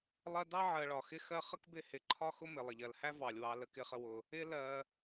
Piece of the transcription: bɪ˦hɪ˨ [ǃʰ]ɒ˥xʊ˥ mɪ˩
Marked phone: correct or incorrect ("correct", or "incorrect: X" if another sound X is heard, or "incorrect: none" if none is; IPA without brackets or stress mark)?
correct